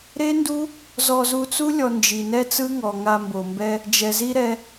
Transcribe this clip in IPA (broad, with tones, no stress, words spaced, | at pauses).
ɾe˦ndu˦ | zɔ˧zu˧t͡su˦ lʲɔ˧nd͡ʒi˨nɛ˦t͡sɯ˦ ŋɔ˨ŋa˧mbo˨mbɛ˦ | d͡ʒɛ˨zi˦ɾɛ˧